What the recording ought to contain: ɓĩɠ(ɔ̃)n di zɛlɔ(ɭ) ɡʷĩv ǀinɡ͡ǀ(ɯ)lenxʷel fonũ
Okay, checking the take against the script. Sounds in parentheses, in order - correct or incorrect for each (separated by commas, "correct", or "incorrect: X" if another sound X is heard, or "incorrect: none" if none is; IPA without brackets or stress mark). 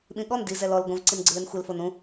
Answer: incorrect: ɔ, incorrect: l, correct